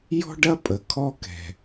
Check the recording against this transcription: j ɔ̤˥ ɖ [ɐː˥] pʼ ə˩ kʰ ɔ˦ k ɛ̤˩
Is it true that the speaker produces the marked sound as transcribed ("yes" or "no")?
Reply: no